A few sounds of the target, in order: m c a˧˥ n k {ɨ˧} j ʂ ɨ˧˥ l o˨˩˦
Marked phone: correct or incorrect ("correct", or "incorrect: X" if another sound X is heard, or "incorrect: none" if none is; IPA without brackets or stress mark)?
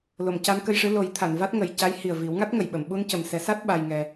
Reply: incorrect: ə˧